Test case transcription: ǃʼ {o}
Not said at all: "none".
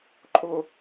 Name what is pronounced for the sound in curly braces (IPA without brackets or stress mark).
o